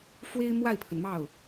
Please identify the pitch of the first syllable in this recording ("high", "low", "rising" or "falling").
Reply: high